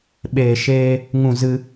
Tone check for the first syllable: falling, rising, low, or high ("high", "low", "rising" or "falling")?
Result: low